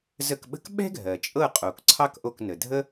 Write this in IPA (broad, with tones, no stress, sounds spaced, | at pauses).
z ə˦˨ k ɓ ə̤˥ k ɓ ɛ̤˥ ɡʱ ɜ˩ t͡ʃʼ ɤ˦˨ qʼ o˩ k ǀʰ ɑ˥ k ʔ o˦˨ k n ə˩ dʱ ə˥